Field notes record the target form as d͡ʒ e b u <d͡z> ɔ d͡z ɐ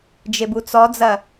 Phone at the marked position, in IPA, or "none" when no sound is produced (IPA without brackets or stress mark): t͡s